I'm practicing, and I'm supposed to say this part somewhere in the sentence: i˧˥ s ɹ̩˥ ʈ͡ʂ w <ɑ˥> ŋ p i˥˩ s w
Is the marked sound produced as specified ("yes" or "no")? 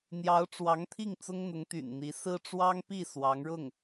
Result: yes